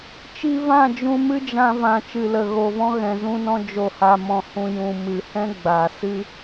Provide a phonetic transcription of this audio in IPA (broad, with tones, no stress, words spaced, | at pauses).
t͡ʃi˧vã˦˨ d͡ʒũ˧mɨ˦d͡ʒã˧ vã˨ t͡ʃɨ˨lə˨ɣo˨vɔ̃˧ ɣɛ̃˨zũ˧nɔ̃˧ d͡ʒo˨ha˨mɔ̃˨hũ˨ jũ˨ mɨ˨hɛ̃˦ ɡ͡ba˨sɨ˦